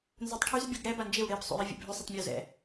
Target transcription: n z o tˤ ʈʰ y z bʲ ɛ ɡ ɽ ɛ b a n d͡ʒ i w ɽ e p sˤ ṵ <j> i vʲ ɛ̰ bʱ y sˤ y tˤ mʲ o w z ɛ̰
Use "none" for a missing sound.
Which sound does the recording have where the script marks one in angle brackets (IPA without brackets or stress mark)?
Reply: j